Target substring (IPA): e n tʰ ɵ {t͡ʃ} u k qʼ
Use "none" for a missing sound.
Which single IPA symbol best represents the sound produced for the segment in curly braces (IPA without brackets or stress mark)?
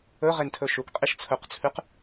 ʃ